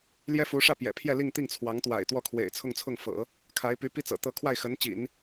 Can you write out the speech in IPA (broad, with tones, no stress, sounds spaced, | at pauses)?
l j ɛ˥ f u˧˥ ʂ ä˥˩ p j ɛ̰˨˩ pʰ j ɛ˥˧ l i˥˧ ŋ t̪ i˥˩ ŋ t͡sʰ w ɑ˧˥ ŋ t̪ w a̰˨˩ ɪ̯ t̪ w ɔ˥˩ kʰ w ḛ˨˩ ɪ̯ t͡sʰ ʊ˥˧ ŋ t͡sʰ ʊ˥˩ ŋ f ɤ̰˨˩˦ | kʰ a˧˥ ɪ̯ p y˧˥ p i˥ t͡s ɤ̰˨˩ t̪ ɤ˥˧ kʰ w a˥˩ ɪ̯ x ə˧˥ n t͡ɕ ḭ˨˩˦ n